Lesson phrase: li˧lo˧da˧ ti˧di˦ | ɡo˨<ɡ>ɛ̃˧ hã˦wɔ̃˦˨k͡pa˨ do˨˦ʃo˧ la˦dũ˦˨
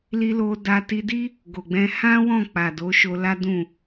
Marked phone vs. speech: incorrect: ɡ͡b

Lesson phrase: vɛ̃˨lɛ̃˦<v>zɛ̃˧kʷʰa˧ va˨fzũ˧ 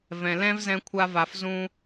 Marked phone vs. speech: correct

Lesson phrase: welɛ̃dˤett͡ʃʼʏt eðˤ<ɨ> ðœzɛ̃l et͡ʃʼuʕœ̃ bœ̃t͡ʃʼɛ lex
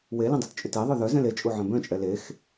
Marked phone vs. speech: incorrect: ʏ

